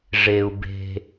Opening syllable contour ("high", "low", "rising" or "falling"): low